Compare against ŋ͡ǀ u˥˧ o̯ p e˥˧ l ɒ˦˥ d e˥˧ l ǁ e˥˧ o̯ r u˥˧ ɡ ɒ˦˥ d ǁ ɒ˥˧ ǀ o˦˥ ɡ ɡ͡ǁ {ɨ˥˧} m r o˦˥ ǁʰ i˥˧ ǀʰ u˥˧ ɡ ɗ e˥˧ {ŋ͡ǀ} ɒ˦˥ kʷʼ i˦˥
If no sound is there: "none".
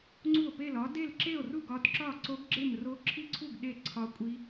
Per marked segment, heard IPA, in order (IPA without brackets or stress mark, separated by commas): e˥˧, ǀʰ